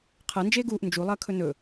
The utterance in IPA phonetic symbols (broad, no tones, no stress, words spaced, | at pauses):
qʰɐ nd͡ʒeːɡuːʔ nd͡ʒu lˠɐːkʰɵnɵ